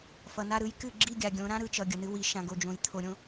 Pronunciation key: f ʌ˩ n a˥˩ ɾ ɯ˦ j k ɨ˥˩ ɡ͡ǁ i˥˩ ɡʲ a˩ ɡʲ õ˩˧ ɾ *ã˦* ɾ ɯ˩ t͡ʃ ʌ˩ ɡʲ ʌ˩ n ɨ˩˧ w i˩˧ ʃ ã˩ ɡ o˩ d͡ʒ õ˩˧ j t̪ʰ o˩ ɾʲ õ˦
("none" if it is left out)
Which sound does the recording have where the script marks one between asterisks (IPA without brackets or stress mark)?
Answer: ã˦